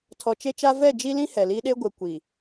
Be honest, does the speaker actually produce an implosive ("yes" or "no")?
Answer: yes